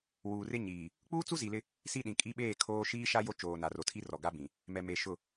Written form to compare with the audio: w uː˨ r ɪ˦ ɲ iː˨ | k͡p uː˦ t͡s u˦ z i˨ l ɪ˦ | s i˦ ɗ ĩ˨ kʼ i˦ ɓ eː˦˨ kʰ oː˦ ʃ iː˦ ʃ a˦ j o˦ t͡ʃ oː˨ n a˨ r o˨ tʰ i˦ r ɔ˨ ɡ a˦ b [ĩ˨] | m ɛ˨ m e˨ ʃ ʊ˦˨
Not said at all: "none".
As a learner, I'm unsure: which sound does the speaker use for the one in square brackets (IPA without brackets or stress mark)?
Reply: ĩ˨